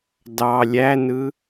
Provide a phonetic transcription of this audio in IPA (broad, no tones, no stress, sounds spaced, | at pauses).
d ɑ lʲ æ n ɯ